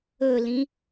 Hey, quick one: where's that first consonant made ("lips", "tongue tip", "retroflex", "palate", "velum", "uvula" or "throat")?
tongue tip